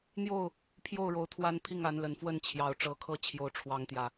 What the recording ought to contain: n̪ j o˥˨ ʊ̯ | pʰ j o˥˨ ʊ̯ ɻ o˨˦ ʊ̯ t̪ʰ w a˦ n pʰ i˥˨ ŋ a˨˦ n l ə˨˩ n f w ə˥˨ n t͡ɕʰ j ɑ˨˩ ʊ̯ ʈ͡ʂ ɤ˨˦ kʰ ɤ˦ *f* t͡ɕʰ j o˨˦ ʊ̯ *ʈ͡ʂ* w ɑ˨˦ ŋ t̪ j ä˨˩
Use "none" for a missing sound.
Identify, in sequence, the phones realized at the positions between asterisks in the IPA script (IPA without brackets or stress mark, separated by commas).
none, ʈ͡ʂʰ